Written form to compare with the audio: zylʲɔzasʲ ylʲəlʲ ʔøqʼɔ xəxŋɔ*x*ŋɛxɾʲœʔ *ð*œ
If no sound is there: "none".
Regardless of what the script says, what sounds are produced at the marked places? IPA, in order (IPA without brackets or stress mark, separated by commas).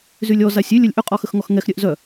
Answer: x, z